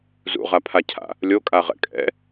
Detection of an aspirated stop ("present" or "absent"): present